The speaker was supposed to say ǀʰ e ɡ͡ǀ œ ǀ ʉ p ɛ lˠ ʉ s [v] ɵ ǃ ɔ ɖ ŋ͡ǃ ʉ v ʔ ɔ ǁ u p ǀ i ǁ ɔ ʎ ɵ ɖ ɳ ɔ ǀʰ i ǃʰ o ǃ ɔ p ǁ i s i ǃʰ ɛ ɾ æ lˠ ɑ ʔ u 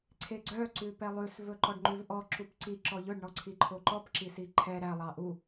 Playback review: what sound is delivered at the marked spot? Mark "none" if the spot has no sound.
v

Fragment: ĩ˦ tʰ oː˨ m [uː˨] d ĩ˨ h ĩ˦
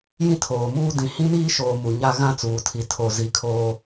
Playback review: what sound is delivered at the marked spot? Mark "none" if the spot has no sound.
uː˦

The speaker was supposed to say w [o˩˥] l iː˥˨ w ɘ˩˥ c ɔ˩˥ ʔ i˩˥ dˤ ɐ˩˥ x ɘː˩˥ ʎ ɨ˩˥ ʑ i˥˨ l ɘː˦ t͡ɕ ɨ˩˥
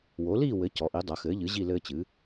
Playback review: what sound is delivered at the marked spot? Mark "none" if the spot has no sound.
o˩˥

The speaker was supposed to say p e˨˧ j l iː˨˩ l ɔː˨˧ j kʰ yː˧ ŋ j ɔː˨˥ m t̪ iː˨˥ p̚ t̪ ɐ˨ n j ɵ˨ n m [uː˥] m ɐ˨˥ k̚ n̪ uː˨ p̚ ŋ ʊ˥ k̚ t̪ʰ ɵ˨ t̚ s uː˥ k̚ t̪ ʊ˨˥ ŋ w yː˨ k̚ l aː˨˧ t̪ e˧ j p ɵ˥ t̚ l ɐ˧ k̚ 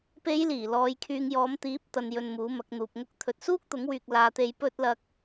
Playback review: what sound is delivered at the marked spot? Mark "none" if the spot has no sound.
uː˨˥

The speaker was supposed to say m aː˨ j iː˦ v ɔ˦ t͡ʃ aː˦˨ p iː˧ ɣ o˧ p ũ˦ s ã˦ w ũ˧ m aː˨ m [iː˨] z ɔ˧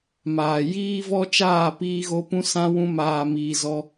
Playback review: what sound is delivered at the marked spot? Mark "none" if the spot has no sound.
iː˨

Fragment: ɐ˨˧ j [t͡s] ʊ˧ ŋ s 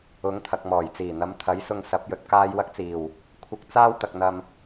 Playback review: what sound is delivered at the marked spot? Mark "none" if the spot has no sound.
s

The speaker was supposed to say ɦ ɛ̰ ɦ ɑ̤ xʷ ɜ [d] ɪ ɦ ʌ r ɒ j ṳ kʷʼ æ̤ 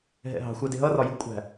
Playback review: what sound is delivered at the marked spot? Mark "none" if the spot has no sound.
d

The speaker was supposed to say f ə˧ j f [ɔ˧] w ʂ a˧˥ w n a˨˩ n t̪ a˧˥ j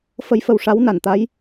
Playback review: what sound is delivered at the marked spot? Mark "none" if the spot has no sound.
ə˧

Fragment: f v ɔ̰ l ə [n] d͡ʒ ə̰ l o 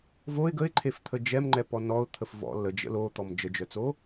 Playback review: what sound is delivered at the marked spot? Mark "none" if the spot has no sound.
none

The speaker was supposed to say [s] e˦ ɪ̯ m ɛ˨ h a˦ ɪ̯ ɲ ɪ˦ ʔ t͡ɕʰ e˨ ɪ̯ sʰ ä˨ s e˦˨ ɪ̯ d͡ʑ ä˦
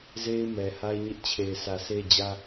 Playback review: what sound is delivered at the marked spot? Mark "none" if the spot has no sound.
z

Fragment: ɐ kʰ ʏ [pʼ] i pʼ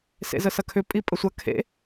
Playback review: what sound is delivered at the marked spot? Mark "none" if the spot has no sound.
pʼ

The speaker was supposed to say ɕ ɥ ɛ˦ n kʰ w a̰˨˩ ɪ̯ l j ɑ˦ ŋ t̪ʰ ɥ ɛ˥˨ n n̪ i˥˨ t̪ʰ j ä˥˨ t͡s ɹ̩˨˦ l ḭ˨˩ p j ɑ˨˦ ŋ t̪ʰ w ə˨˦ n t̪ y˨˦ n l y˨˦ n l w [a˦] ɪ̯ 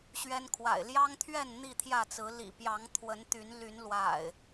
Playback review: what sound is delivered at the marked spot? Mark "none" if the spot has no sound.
a̰˨˩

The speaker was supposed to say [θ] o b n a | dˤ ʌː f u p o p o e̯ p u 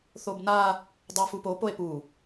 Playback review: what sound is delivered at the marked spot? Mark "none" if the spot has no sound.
θ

